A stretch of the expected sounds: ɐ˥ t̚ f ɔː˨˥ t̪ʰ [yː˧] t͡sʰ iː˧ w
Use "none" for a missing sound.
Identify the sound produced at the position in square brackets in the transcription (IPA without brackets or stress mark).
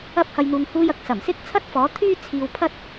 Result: yː˥